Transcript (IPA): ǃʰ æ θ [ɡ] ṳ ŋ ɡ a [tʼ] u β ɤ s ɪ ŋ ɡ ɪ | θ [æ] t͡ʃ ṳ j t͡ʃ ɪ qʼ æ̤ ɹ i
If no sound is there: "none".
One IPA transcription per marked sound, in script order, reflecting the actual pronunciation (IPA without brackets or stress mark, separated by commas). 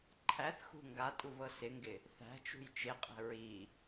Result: x, tʼ, æ̤